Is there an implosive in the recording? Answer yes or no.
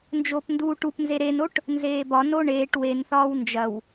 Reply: no